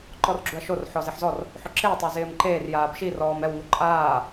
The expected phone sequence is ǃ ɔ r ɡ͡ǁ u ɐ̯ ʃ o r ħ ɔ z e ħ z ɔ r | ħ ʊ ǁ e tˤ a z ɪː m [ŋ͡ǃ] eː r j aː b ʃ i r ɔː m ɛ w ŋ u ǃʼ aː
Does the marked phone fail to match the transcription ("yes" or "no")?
yes